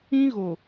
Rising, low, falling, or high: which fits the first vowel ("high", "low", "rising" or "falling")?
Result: high